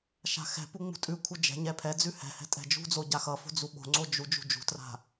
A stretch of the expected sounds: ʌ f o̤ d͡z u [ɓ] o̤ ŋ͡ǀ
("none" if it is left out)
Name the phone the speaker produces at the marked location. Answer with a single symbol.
ɓ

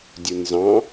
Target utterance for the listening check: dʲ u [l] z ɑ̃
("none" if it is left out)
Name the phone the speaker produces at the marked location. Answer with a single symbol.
n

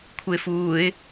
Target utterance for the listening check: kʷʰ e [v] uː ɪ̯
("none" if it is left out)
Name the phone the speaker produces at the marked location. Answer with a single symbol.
f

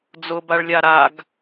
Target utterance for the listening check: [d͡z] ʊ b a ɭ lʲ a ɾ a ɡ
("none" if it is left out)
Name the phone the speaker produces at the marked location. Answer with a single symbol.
d͡z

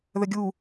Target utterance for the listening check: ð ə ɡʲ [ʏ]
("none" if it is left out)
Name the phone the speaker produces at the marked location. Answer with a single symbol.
u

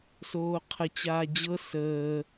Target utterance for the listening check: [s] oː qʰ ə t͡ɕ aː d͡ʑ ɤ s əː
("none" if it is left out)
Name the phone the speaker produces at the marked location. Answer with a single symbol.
s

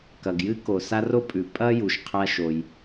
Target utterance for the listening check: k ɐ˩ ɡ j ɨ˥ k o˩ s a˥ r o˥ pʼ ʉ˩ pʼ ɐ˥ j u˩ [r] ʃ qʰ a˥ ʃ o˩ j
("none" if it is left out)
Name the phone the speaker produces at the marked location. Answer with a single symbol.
none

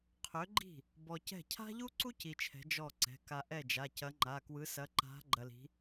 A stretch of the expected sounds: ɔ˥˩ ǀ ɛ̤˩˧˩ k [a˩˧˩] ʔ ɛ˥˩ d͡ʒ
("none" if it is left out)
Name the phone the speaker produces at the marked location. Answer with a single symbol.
a˧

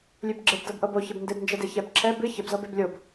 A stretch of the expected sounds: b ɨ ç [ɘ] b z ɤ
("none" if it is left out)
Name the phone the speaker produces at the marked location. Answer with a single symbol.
ɘ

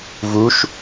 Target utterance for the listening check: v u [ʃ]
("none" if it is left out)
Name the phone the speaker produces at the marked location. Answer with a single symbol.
ʃ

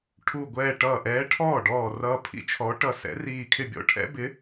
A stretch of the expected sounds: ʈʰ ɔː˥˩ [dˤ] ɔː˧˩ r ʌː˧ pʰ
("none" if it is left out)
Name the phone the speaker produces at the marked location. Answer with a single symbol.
ɖ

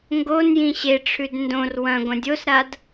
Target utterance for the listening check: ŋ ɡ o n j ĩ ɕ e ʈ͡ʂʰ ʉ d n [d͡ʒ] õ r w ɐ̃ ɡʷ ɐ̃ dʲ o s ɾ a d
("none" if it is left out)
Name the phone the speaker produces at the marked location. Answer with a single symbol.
d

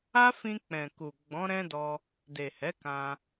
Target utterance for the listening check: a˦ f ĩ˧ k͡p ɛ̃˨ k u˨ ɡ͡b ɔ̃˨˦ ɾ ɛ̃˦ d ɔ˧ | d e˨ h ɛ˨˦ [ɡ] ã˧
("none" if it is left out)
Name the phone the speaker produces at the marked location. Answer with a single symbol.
k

